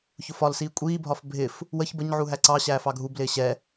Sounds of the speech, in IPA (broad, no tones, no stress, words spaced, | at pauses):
çʊfɒlsiː kʷʼiːbʱɒf bʱɪf | wəç bəɲʕu ɦæǀɑɕæːf ɑɡʱublɪː ɕɛ